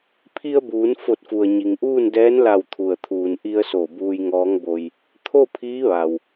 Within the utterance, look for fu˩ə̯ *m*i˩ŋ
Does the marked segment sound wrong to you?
yes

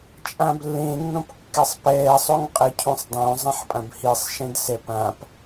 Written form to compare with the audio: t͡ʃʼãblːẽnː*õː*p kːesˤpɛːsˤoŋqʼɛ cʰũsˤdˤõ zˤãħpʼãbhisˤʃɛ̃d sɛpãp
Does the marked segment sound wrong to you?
yes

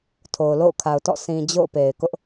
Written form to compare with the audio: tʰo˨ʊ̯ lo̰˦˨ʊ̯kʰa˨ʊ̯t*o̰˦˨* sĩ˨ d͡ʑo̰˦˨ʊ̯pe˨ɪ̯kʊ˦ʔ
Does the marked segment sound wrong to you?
yes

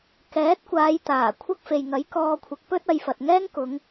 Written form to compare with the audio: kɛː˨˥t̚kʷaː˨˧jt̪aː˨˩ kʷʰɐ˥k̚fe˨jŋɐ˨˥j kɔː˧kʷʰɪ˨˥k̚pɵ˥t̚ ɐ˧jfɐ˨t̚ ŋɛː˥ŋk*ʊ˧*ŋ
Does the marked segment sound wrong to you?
yes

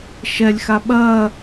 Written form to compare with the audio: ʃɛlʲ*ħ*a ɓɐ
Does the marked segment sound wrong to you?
yes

